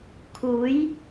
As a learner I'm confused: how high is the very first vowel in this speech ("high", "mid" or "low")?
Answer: high